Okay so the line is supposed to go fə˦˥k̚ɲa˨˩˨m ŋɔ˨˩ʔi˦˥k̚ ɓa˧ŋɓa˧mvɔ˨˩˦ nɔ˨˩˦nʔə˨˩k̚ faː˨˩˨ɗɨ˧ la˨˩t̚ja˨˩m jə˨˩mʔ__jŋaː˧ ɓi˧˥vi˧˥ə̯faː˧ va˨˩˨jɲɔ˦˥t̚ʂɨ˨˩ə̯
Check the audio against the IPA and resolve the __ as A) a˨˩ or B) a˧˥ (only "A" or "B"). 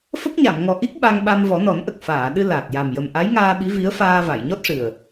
B